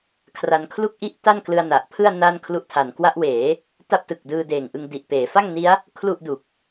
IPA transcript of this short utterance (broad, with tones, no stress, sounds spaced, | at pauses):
kʰ r a˧ n kʰ l u˥˩ k̚ ʔ i˥˩ ʔ t a˥˩ n k l ɯ˧ a̯ n a˨˩ ʔ pʰ ɯ˥˩ a̯ n aː˥˩ n kʰ l u˦˥ ʔ tʰ a˩˦ n k w a˦˥ ʔ w eː˩˦ | t a˥˩ p̚ t ɯ˨˩ k̚ d ɯː˧ d eː˨˩ ŋ ʔ ɯ˧ ŋ d i˨˩ ʔ p eː˩˦ f a˥˩ ŋ n i˦˥ a̯ | kʰ l u˥˩ ʔ d u˨˩ k̚